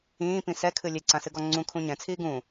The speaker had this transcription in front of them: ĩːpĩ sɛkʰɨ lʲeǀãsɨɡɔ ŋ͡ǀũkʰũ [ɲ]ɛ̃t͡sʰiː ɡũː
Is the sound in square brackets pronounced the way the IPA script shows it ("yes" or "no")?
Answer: yes